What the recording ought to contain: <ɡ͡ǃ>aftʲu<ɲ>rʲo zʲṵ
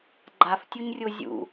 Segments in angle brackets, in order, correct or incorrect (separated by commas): correct, correct